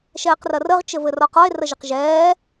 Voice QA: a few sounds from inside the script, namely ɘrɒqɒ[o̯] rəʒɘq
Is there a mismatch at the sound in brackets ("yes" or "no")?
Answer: yes